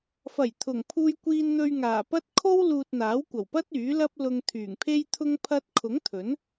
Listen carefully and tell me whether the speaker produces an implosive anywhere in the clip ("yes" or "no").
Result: no